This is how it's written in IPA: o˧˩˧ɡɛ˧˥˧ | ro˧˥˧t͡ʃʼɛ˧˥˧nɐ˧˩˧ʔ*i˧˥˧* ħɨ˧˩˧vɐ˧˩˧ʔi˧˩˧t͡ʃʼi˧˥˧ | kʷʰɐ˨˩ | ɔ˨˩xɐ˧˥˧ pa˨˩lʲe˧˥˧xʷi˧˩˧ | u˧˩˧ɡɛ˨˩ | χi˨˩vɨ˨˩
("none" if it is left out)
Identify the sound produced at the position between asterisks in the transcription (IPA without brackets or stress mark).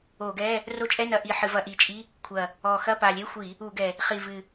i˨˩